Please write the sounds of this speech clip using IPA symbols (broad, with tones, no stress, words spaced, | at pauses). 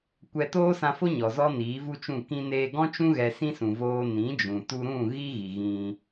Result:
kʷɛ˧toː˦sã˧ fo˦ɲɔ˨ zɔ˦niː˨˦ vu˦t͡ʃũ˦˨ kĩ˧ neː˧ɡɔ̃˦t͡ʃũ˦ ɣɛ˧sĩ˦sũ˨voː˧ nĩ˨˦d͡ʒũ˨tu˧ɾũ˦˨ ɣi˦ɣi˨ɣĩ˧